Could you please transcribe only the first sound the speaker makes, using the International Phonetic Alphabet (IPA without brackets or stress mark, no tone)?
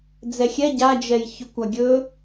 d͡z